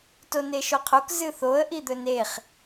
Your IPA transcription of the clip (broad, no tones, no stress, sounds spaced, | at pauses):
t o n e ʃ o qʰ o k z ɨ θ o ə̯ ʔ i d̪ ɵ n e χ